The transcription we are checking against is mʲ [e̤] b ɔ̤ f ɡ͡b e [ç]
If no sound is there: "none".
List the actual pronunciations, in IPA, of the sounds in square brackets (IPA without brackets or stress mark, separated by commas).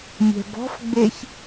ɛ̤, ç